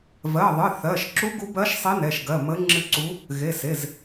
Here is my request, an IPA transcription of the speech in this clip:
vɜ˩˧˩ðˤɨ˩˧˩ θɜ˩˧˩ʃǁu˧˥ ɡu˧˥bɜ˧˥ʃ sˤi˧˥nɛ˩˧˩ʃ ɡɜ˩˧˩ mə˧˥ ŋ͡ǁɨ˧˥ǀu˧˥ | ɣe˩˧˩se˩˧˩z

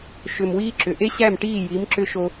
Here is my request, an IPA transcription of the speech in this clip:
ʃʏ˨m wiː˦ǁʏ˨ ʔe˦ɕæ˦˨mʈiː˦˨ji˨˦m ǁʏ˦ʃo˦

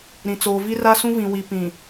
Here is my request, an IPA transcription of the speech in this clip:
ɾĩ˨t͡soː˨vi˦ ra˦sũ˦vĩ˨ wi˨ pĩ˨

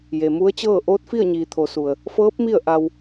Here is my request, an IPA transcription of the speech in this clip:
je˩mu˧˥ə̯t͡ɕɤː˥˨ ʔoː˧˥t̚fi˥˨ə̯ɲiː˩ t̪ʰo˩˧su˩ə̯ | fɤː˧˥p̚ mi˥˨ə̯ʔa˧w

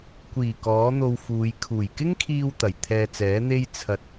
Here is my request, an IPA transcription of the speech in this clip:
kʷiː˨˩ kɔː˨˥n̪o˧wfuː˨˧j kʰuː˨˩jkɪ˥ŋkʰiː˧w t̪ɐ˨˩jt̪ʰɛː˧t͡sɛː˨˥ n̪e˥jt͡sʰɐ˧t̚

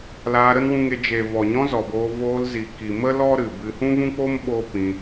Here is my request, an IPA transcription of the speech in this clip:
laː˧ɾə˦nwũ˧ŋe˧ d͡ʒe˨vɔ˨ɲɔ̃˧ zɔ˨boː˧ voː˧lzi˨ki˨ mə˦ lɔ˦ɾɨ˨bɨ˧ hũ˦vũ˦k͡po˦m ɓo˦pĩ˧

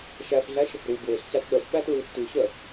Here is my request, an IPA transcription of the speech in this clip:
ʃæfɮæʃ | ɾu bweɬcæt ɗœfɓæ tɹʉɬtʉɕœ

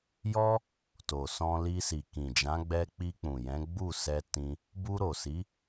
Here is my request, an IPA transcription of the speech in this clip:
jɔ˦ | to˨sɔ̃˧li˧si˨ kĩ˨d͡ʒã˨˦ ɡ͡bɛ˧k͡pi˧k͡pũ˨jɛ̃˨˦ ɡ͡bu˦˨sɛ˧ tĩ˧ | bu˧ɾo˨si˨˦

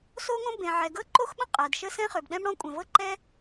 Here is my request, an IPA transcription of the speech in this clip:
so˥ŋõ˥bẽ˩ ʕɛ˩ɡɤ˥ǃo˥xɓə̃˥ qʼɜ˩dʃə˥ sɛ̃˥χø˩bɗɛ̃˥mɽɔ̃˥ kʷʼɛ̃˩vɤ˥ǃɛ˥

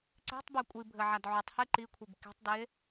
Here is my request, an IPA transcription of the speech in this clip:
ǀe̤tˤbɛ kʷʼibʱɘ ʕadʕutˤhe ǃikʷʰib ke̤tˤde

